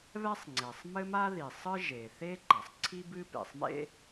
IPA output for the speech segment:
βɛ˥sˤŋ͡ǀe˩sˤ mɘ˥ma˥ði˩sˤɨ˥ ʒe˩ θe˥ ǃa˩sˤǀʰi˥bɨ˥ pḛ˩sˤmḛ˥

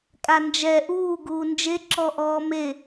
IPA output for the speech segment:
kʼand͡ʒɛ ʔuː ɡuːnd͡ʒe ǁɔʔɔːme

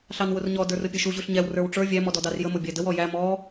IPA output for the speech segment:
ɬɑnwʊrɲɔ də˞rʊpʲəʃu ʑuɬɲɛw rə˞wʈ͡ʂə˞ vʲæ mɔdɔdɑrjə mʊbʲædəw ɔjæ mɔ

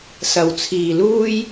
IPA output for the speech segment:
sɐ˨˩wt͡sʰiː˨˩luː˥j

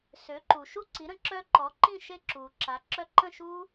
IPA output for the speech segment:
sø˩˥ǃu˩ ʃu˥˨ǀi˩˥ɾə̃˩˥ ǁœ˦˥ǃɔ˩˥ǃĩ˥˨ ʃe˥˨ǁuː˩ǁa˩˥ǁœ˥˨ ǃə̃˥˨ʃu˦˥

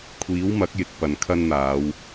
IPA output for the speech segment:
kʷʰiː˨˥wmɐ˨˥k̚ jɪ˨k̚pɐ˨n kʰɐ˧nn̪aː˨˧w

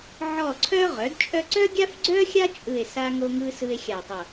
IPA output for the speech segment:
ʕɔ˦˨ǀʰœ˥ ʁœ˩˥dt͡ʃʼœ˥ ǀœ˥ɡʲa˥fɡ͡ǀœ˥xʲa˥ t͡ʃʼɯ˦˨e̯ sa˥ŋo˥ŋɯ˥ sɯ˥e̯xʲa˦˨o̯tˤo˦˨

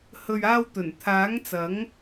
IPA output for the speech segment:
hɵ˨ɥaː˧wt̪ɵ˨˩n t̪ʰaː˨˥ŋt͡sɐ˨˥ŋ

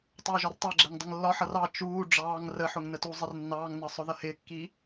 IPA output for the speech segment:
tˤuːʒɒrtˤɜɡ͡ǁɛŋ dˤɪŋlːɒħʌ rɑ t͡ʃuː ɖ͡ʐɑːŋ rəħʊŋ nətuzˤɪr nːɑːŋnʌ sˤʊðʌhɪːkːiː

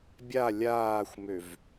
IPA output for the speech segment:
bʲa lʲaːxʷmøv

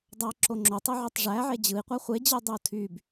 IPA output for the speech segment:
dˤɑ ǁoŋ͡ǁotˤɯ ʕotˤʐæʕe d͡ʑɯi̯qʷæ χʷed͡ʑɯ dˤyu̯tʰyb

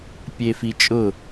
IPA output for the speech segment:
pʲefit͡ʃʼʊ

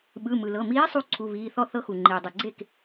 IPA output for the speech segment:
ɓɯ˩˧˩mɯ˩lɤ˩˧˩ miː˨˥sˤu˨˥ ǀʰu˩˧˩viː˩˧˩θɔ˥˩ θɤ˦xu˩ŋ͡ǃiː˩ dˤu˩ɡ͡ǀe˥˩k

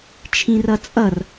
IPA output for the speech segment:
t͡ʃʰĩrʌt͡sʼʌr

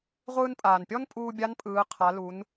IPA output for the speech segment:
ʁʷɯː˧npʼaː˩npʲɔ˥n pʼuː˧bʲa˧˥npʼɯː˩˧ qʰa˩˧lu˩˧n

